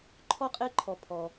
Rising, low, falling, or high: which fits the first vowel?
high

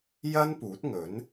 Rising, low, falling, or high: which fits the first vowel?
high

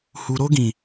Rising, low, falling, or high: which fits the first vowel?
low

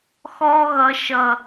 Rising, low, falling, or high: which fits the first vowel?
high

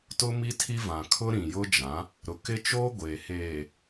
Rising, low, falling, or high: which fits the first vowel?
high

